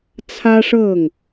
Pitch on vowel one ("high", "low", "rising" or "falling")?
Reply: high